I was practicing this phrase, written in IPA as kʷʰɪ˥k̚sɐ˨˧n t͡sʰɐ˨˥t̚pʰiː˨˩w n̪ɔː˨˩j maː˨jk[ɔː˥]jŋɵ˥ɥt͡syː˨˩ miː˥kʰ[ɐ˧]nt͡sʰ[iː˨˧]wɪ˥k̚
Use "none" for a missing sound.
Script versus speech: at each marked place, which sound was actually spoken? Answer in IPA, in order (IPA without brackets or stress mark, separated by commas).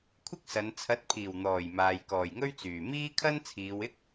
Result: ɔː˨˩, ɐ˥, iː˨˧